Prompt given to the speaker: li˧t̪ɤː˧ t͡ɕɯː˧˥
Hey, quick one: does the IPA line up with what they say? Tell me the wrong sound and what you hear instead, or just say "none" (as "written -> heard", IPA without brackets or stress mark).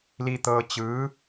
none